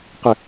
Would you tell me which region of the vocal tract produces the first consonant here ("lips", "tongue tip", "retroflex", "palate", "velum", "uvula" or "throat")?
uvula